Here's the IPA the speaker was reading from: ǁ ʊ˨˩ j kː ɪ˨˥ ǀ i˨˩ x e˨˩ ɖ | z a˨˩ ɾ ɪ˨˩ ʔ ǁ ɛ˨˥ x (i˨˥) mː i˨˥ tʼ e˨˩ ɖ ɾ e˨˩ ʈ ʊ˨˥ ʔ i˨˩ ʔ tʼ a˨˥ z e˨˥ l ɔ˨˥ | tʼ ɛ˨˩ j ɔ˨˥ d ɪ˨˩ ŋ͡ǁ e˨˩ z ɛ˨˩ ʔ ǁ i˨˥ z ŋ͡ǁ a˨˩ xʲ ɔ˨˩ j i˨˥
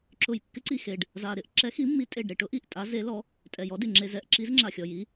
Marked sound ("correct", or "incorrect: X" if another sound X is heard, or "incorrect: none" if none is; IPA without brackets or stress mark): correct